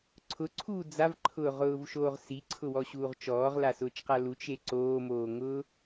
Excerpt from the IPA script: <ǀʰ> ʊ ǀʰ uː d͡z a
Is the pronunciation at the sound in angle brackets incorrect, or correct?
correct